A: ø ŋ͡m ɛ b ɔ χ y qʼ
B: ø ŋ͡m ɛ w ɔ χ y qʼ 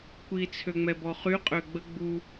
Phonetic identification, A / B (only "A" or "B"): A